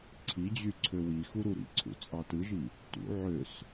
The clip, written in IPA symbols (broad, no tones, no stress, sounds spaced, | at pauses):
ǀʰ i d͡ʑ y ǀʰ ø w i x u ɾ u ɾ ḭ ǀʰ ṵ t͡sʼ ɑ t ɯ ʒ i | t ṵ ʕ ø s